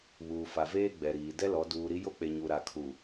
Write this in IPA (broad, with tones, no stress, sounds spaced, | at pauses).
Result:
β uː˨ f a˨ v eː˦ ɡ͡b ɛ˨ ɾ iː˨ d ɛ˦ l ɔ˨˦ d uː˨ ɾ i˦ j o˦ k͡p e˨ ɲ u˨ ɾ a˨ kʰ u˨